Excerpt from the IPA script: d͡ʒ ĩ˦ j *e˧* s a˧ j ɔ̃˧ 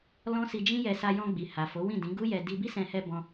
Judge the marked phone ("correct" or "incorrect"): incorrect